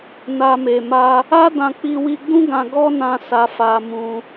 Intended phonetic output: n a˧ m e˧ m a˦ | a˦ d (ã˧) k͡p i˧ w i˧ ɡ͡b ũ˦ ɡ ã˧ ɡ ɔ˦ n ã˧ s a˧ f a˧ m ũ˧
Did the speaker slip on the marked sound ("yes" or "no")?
no